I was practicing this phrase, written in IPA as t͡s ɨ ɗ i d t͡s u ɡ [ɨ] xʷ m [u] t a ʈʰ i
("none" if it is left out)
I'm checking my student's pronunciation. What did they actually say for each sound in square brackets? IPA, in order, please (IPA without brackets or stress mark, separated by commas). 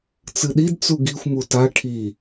i, u